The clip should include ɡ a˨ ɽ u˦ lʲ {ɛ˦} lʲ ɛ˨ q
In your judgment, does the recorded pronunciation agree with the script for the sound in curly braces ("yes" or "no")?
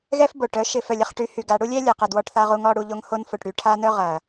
yes